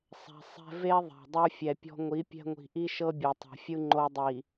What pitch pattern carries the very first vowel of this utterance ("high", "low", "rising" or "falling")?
low